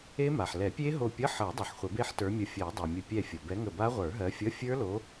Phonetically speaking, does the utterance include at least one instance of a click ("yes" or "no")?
no